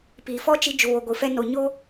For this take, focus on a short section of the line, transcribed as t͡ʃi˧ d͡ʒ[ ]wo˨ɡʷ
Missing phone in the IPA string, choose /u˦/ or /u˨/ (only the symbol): u˨